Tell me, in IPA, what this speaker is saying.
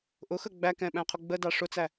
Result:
ʔ ʊ x ə ɡ͡b æ k ɛ̃ ɓ æ̃ qʰ ʊ ɡ͡b ə d ɑ ʂ ʊ t͡s æ

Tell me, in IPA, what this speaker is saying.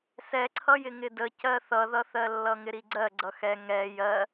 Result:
s ɛ ǀʰ ʌ j ɪ ŋ ɪ d ə c ɜ θ ʌ ð ʌ θ ɜ lː ʌ ŋ ɪ ɾ i ɡ͡ǀ ɜ ɡ͡ǀ ʌ x ɛ ŋ ɛ j ɜ

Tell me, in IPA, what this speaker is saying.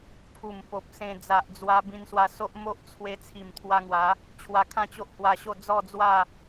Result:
pʰ u˨˩ m p o˨ p̚ s ẽ˧ d͡z a˨ ʔ d͡z w a˧ b ĩ˧ n s w a˧ s o˦ ʔ m o˦ ʔ t͡sʰ w e˧ t͡sʰ i˨˩ m t̪ʰ w a˧ ŋ w a˨˦ | t͡ɕʰ w a˧ kʰ ã˥˧ t͡ɕ o˦ ʔ h w a˧ ɕ o˥˧ d͡z ɔ˥˧ d͡z w a˥˧

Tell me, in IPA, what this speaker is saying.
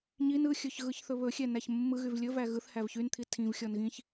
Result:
ɲ i n ɯ xʲ ɵ ç ɣ ɯ ç θ ɵ β ɵ xʲ ɛ n æ ç mː ɯ ɣ y v lʲ ɵ v æ ɣ ɯ θ h æ v ç y n t̪ʰ i tʰ ĩ v xʲ ɔ n ɣ ĩ ç

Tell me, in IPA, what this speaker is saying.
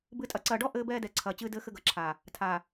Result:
b ɨ˨ tʼ ɐ˨ ǀ ɐː˨ ɖ ɔ˦ ʔ ɘː˦ b ɛː˦ d ɛ˨ ǀʰ ɐː˨ t͡ɕ ɨː˦ d ɘː˦ x ɘ˦ ɡ ɐ˨ ǁʰ aː˨ | tʰ aː˨

